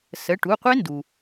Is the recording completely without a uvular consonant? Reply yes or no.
no